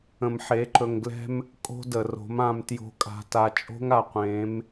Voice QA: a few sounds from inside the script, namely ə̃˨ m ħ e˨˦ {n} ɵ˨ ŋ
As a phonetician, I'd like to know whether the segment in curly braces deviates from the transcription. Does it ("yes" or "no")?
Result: yes